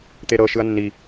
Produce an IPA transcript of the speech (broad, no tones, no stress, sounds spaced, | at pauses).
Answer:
t̪ e ɾ ɤ ʃ ɯ ɐ̯ nː i